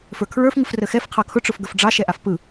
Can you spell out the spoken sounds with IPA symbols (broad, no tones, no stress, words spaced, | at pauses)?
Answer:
fə˞kʰɹə˞f ŋɯfrəxɛf qʰɑkʰʊ ʈ͡ʂʊfɡəfɖ͡ʐɑ ʃɛʔafpɯ